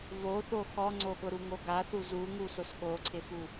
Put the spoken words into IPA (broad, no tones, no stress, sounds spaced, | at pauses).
v o θ o x ɔ ŋ͡ǀ o ɠ ʊ ɾ u ŋ o ɡ a θ u z u ŋ u s ʊ s ɠ o ǀʰ ɪ f u